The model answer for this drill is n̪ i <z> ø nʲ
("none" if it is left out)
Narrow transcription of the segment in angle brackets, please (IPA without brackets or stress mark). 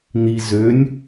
z